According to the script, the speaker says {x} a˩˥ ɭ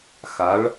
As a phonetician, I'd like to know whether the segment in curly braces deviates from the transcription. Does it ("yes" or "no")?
no